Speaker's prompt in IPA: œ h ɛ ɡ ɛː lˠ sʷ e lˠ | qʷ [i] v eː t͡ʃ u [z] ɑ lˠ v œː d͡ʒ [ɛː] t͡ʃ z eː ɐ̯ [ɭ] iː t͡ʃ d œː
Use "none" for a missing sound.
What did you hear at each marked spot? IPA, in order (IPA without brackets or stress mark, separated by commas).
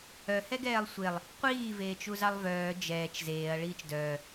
iː, z, ɛː, ɭ